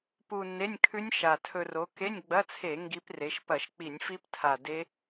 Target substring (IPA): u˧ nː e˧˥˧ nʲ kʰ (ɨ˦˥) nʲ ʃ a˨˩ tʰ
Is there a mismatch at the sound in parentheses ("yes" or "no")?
yes